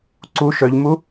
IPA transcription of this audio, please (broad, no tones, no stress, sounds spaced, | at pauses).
ǀ u ʃ œ ʎ m u